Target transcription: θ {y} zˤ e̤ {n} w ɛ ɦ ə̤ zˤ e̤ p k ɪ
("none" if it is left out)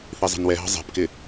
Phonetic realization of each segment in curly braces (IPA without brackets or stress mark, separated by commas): i, n